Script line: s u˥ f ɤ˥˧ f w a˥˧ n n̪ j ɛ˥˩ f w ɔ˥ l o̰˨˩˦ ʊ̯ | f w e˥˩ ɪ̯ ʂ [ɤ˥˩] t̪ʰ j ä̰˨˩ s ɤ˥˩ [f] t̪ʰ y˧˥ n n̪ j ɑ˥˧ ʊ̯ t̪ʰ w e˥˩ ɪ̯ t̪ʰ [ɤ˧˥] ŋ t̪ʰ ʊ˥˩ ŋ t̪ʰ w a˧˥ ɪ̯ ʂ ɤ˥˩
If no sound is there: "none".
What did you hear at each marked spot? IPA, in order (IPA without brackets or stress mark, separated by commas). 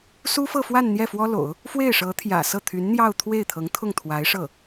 ɤ˧˥, none, ɤ˧˥